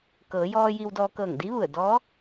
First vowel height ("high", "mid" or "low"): mid